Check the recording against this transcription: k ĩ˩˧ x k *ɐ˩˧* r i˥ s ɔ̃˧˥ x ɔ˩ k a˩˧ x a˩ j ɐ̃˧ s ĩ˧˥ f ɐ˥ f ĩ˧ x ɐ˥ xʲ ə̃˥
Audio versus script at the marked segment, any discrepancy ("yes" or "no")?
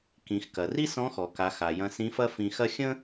yes